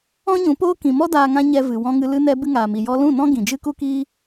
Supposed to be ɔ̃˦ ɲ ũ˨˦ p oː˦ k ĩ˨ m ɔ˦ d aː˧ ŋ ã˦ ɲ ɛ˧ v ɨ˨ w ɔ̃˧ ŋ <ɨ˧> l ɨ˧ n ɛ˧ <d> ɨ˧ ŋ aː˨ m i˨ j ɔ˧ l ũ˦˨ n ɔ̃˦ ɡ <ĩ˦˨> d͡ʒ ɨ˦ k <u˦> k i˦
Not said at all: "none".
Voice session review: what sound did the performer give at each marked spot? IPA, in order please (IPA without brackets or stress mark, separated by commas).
ɨ˧, b, ĩ˨, u˦